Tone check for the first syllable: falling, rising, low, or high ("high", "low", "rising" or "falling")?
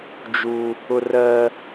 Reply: high